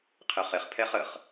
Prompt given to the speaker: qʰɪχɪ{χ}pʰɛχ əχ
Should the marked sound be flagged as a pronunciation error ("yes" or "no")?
no